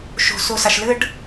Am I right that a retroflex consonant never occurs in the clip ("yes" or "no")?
no